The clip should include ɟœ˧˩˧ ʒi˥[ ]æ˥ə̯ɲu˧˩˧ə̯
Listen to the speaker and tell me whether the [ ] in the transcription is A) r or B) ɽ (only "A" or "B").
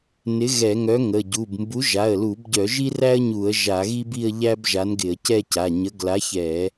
A